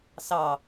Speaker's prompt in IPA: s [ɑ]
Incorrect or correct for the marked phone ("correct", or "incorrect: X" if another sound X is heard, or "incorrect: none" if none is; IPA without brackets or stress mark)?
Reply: correct